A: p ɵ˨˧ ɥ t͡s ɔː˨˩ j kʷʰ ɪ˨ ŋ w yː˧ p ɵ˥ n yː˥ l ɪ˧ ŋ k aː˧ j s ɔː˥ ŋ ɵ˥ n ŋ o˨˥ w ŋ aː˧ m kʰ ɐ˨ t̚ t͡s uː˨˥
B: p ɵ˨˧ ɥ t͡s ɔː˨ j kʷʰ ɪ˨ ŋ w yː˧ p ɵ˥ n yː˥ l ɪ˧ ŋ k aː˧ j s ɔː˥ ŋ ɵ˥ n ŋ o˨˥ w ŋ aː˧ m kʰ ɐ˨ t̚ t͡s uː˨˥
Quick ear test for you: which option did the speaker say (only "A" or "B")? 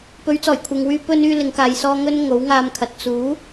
A